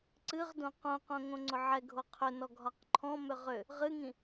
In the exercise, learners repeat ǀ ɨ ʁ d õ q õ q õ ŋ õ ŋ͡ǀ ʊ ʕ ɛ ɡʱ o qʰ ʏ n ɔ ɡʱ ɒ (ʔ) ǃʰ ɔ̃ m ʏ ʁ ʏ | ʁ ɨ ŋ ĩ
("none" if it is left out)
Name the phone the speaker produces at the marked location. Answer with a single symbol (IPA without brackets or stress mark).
q